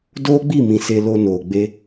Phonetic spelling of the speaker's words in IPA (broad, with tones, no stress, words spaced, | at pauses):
doː˦ɡ͡bi˦˨mĩ˨ se˧lo˧noː˨ ɡ͡be˧